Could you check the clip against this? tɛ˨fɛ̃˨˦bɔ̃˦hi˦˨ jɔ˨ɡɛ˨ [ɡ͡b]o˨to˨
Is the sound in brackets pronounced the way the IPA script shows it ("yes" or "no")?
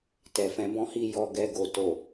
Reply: no